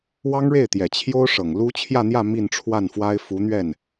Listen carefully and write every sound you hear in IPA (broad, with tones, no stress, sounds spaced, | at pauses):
w ɑ˥ ŋ ɻ e˥˩ ɪ̯ t̪ j ɛ˨˩ t͡ɕʰ j o˥ ʊ̯ ʂ ɤ˨˩ ŋ l u˥ t͡ɕʰ j ä˥˧ n̪ j ä˥˧ m i˥˧ n ʈ͡ʂʰ w a˥˩ n f w a˥ ɪ̯ f u˧˥ n̪ ɥ ɛ˥˩ n